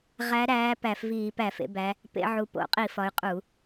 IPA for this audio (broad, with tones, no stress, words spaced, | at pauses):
ʁæ˨˦ɾæː˨˦ pæ˧˩˧fviː˧˩˧ pæ˧˩˧fḛ˨˦bæ˨˦ | pḛ˨˦ ʕu˨˦po̰˧˩˧ qʼi˧˩˧ fɒ˨˦y̯qʼu˧˩˧